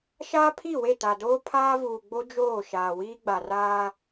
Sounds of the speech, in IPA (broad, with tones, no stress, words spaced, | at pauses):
ʃaː˦pʰi˦˨we˦˨ta˨ doː˦pʰaː˦vuː˨ ɡ͡bo˦d͡ʒoː˦˨ ʃaː˨wiː˦ɡ͡ba˨ raː˦